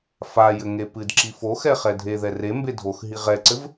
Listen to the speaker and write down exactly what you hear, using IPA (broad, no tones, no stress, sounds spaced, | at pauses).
f a j ɘ ŋ e p ɨ d ǁ i f o x ɛ χ ɛ dʱ e ð ɛ r e m b e dʱ o x ɦ i ʁ ɛ ǀ ɘ v